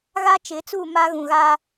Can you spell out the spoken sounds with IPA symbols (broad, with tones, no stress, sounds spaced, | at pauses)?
ɣ a˦ t͡ʃ ɪ˨˦ t͡s u˦˨ m a˦ ɣ ũ˨ ɣ a˦